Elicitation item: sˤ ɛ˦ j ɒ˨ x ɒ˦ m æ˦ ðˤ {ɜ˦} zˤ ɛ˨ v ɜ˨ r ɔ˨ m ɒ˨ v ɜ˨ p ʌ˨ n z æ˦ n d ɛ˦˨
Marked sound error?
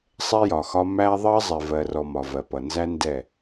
no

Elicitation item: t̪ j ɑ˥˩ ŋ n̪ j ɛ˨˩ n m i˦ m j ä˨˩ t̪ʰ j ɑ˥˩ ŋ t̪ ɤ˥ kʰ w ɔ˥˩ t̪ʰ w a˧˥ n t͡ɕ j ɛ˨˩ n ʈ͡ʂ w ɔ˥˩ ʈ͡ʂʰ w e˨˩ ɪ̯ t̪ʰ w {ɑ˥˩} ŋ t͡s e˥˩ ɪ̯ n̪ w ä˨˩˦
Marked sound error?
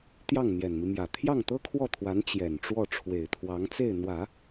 yes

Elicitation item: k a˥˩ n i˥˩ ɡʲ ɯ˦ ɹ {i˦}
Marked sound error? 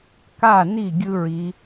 yes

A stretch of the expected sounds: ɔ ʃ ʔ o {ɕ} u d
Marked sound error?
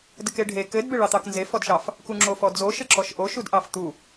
yes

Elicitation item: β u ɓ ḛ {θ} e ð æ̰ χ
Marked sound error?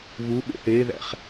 no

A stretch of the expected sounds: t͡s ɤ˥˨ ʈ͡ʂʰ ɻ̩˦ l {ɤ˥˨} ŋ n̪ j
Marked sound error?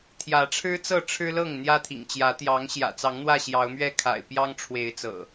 no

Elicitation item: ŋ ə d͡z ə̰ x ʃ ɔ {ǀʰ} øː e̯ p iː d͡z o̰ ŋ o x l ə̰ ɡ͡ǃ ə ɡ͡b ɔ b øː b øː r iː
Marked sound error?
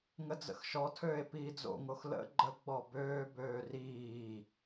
yes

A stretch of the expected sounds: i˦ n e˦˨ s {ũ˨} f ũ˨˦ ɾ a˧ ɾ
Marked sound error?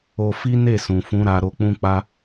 no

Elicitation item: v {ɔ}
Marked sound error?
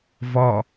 no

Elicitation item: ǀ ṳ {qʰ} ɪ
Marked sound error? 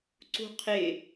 no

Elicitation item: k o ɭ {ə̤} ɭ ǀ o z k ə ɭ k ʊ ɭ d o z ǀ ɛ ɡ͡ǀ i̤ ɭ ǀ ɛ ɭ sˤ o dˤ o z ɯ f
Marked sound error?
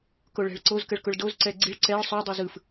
yes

